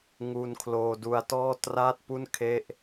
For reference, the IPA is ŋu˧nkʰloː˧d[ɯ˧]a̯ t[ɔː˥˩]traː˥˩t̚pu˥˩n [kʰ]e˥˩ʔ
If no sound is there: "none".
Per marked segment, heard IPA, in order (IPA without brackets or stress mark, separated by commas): u˧, ɔː˥˩, kʰ